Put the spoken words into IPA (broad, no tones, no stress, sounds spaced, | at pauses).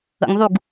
ə̰ ŋ ðˤ u ɡ